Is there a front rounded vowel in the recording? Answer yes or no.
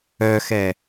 yes